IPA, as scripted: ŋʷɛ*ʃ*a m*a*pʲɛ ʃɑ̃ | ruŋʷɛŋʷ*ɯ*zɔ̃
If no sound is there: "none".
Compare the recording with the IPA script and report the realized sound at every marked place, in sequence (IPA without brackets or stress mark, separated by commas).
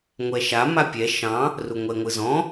ʃ, a, ɯ